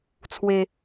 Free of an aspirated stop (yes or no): no